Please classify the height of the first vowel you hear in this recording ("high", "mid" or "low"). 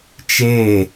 mid